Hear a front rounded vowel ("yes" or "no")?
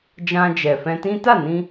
no